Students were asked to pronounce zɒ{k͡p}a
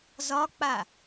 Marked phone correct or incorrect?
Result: correct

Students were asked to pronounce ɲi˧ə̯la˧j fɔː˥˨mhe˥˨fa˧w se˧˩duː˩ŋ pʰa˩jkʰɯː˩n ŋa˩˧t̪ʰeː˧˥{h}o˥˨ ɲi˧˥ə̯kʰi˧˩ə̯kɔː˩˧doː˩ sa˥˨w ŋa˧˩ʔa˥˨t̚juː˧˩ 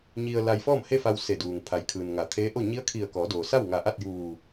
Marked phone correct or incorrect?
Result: incorrect: ʔ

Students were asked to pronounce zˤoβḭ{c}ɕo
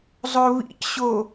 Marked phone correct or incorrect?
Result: correct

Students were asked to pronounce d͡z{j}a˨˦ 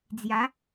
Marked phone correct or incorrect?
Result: correct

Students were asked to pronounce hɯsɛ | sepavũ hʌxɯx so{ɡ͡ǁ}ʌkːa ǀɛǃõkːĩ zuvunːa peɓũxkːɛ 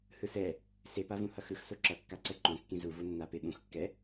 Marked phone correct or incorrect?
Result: incorrect: ǁ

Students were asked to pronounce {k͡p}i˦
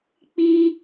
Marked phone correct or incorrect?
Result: correct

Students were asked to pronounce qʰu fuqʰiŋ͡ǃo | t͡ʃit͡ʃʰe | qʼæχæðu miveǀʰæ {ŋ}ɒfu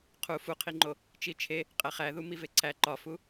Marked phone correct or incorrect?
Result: incorrect: ǃ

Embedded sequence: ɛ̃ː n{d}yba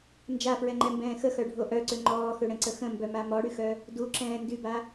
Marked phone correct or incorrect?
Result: correct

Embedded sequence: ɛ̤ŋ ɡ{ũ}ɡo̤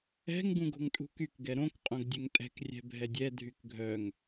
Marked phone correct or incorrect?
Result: correct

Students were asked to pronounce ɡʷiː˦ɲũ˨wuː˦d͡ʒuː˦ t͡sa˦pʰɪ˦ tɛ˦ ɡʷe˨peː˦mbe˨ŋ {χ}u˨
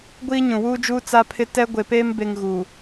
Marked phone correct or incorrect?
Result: incorrect: ɣ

